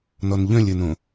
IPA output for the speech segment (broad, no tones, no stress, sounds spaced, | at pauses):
n ɔ n ʎ œ̃ lʲ ə n õ